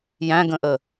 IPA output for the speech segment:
j æ̃ ɡ ə̃ ʔ ə

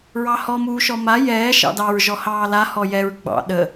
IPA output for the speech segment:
ɹ ɑ h ɔ m uː ʃ ɔ m a j ɛː ʃ ɑ̰ d ɑ ɹ ʒ ɔ h ɑː l a h ɔ j ɛ ɹ ɡ͡b ɑ̰ ɗ ə

